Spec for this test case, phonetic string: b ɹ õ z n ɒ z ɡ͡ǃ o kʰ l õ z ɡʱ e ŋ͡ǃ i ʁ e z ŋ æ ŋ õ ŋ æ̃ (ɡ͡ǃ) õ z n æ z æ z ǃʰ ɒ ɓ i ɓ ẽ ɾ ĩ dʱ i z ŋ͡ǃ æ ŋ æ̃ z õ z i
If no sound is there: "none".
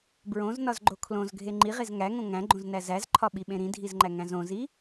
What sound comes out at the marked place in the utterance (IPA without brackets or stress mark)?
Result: ɡ͡ǃ